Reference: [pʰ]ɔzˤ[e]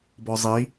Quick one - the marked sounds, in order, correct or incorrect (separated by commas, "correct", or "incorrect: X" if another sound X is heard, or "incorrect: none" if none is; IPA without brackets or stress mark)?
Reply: incorrect: b, incorrect: i